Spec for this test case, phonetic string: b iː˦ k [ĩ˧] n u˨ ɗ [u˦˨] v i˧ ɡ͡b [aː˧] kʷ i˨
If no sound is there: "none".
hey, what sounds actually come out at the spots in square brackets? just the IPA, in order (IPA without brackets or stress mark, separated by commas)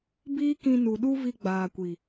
ĩ˧, u˦, aː˨